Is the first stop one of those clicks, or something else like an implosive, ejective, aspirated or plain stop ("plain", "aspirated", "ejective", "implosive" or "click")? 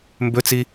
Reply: plain